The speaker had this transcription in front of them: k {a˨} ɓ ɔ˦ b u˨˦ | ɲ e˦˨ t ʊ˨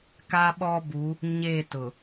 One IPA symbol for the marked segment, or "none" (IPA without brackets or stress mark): a˦